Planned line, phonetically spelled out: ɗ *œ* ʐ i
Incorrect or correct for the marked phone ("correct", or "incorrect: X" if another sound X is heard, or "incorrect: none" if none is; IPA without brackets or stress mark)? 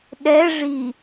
incorrect: ɛ